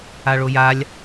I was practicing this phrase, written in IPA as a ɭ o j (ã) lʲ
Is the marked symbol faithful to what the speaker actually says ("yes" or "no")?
no